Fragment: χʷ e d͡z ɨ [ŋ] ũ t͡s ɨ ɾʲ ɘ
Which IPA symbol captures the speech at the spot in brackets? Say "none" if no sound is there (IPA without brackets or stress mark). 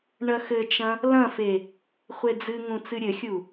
ŋ